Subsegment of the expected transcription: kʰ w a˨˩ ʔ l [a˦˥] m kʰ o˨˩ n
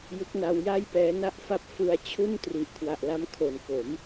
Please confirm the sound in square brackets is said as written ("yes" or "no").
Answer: yes